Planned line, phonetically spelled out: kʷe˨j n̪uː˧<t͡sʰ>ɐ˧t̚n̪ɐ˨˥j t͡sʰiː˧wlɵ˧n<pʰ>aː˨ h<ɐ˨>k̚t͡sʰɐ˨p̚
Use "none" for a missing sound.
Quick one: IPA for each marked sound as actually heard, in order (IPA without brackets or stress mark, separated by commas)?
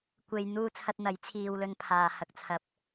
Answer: t͡sʰ, pʰ, ɐ˨